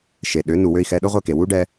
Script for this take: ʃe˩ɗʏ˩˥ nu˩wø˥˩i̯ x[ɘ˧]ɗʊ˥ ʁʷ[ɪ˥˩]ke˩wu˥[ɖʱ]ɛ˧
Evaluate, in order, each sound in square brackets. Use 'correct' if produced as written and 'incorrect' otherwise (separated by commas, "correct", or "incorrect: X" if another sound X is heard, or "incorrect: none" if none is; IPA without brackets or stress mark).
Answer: incorrect: ɛ˧, correct, incorrect: ɖ